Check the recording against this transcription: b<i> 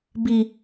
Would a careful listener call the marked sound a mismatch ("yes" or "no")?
no